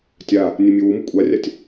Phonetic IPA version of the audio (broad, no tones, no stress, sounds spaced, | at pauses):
tʲ a | nʲ e mʲ ʉ w u m u kʷʼ a rʲ a tʲ